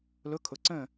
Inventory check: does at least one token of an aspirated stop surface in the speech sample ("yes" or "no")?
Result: yes